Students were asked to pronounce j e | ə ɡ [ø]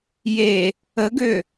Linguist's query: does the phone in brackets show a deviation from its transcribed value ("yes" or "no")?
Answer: no